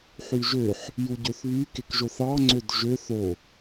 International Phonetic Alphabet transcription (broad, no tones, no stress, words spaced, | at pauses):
ħyʒøħ | juɟøθβy kekʒoθɑ ŋ͡ǀødʒø θo